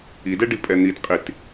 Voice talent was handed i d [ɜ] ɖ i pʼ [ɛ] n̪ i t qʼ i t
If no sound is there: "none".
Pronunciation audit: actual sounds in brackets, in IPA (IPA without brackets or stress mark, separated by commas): ɛ, ɛ